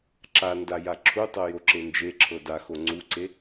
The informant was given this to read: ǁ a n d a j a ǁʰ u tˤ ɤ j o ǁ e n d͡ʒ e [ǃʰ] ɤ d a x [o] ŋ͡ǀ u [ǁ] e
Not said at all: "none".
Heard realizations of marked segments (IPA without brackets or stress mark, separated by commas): ǁʰ, o, ǀ